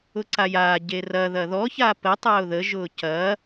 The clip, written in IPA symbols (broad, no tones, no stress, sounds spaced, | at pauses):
ʊ ǀ a j aː ɟ e r ɐ ð ɐ ð ɔ ç a p ə tˤ a ʊ̯ ð ə ʒ ʊː c ɐ